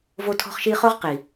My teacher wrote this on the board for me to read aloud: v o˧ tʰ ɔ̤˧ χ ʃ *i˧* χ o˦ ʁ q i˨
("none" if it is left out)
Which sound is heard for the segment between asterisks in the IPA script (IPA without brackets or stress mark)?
i˧